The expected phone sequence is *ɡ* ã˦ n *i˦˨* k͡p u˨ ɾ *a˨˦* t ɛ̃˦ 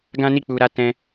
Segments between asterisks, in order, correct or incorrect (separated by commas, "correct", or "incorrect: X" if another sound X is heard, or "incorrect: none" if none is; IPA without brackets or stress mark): correct, correct, correct